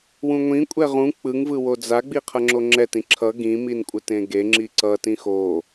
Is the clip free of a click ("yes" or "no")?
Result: no